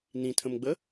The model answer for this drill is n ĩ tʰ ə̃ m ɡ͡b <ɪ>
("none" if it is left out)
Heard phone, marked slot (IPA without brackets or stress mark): ə